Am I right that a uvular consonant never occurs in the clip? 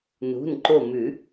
yes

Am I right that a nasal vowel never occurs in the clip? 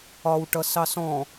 no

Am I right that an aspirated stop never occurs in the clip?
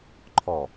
no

